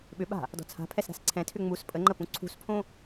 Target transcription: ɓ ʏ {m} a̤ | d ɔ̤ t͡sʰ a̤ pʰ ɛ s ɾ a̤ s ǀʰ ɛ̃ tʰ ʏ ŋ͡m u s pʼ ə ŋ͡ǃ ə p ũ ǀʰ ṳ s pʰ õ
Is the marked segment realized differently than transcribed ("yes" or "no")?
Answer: yes